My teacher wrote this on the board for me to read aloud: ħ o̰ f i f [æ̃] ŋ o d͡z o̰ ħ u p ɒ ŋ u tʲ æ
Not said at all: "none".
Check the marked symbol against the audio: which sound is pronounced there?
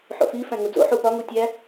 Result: æ̃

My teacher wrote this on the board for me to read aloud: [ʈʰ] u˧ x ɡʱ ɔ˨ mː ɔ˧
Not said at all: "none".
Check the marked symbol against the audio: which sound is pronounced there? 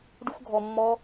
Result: ɖ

